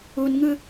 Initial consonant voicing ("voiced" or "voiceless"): voiced